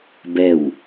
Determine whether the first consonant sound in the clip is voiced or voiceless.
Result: voiced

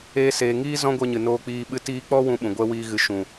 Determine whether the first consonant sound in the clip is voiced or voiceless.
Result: voiceless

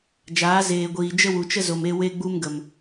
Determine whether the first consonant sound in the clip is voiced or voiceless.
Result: voiced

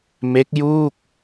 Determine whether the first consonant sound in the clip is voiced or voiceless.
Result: voiced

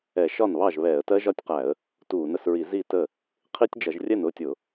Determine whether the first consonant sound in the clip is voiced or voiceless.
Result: voiceless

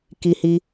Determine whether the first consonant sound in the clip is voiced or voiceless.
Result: voiceless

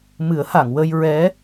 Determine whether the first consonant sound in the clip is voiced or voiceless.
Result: voiced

